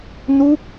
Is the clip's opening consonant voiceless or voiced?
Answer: voiced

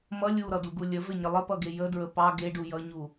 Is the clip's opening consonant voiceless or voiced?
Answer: voiced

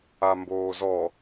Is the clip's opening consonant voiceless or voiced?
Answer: voiced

